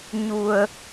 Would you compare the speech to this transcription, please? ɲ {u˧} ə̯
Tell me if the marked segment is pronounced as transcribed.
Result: yes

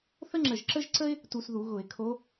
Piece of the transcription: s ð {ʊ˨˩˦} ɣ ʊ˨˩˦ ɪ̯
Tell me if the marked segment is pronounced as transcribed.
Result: no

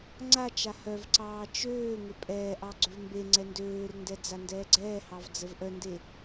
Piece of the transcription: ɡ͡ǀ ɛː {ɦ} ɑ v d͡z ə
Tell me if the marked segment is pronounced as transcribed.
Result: no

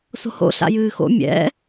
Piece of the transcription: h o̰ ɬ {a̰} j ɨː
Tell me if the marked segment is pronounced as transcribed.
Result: yes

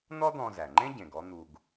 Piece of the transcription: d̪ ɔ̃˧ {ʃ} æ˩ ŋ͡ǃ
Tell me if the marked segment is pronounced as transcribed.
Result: no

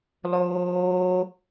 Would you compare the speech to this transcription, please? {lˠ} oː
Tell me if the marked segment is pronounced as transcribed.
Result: yes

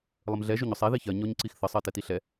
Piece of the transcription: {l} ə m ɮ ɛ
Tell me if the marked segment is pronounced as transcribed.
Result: no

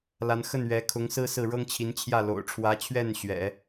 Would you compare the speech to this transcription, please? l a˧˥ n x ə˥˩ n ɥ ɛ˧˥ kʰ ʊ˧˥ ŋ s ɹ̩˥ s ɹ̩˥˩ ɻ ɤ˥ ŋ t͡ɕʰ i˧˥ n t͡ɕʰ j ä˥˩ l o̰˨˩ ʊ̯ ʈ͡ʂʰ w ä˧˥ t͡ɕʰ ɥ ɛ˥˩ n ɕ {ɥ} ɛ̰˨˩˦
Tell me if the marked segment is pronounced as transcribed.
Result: yes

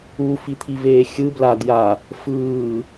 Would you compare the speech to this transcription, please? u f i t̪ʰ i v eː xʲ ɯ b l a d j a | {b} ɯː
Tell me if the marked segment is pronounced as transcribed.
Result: no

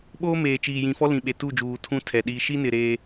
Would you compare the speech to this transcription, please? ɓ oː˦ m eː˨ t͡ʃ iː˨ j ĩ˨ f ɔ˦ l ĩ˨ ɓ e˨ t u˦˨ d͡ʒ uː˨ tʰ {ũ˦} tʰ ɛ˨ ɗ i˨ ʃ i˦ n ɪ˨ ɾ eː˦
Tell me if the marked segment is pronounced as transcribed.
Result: yes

